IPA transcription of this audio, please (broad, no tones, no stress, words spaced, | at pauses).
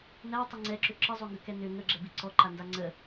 nætˤʏ ŋ͡ǀɛǁʏ ǁəzˤoŋɡʏkɛ nʏ ŋəɡ͡ǁɛbi ǀɔǃanda ŋ͡ǀə